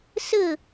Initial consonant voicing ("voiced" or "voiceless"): voiceless